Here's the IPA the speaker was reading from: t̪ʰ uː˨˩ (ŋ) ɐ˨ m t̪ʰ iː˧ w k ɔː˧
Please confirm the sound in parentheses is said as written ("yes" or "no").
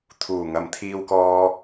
yes